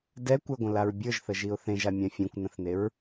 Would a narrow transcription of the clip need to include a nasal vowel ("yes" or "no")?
yes